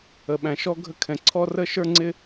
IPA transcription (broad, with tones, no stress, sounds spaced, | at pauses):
ə˧ ɓ æ̃˧ ʃ ɔ˥ ɡʱ ə˥ kʰ ɛ̃˧ ǀʰ ɔ˥ r ə˥ ʃ ə˞˥ ŋ͡ǀ ɪ˥